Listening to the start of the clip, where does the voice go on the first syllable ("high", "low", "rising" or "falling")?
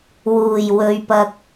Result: low